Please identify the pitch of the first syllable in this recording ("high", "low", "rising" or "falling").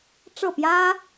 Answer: falling